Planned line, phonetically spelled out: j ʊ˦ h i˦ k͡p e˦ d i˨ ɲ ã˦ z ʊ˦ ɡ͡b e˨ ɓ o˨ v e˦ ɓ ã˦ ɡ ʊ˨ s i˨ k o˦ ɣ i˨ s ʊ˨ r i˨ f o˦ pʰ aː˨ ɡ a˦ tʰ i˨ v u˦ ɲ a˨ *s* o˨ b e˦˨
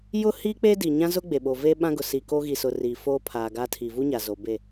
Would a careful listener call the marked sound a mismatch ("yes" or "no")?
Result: yes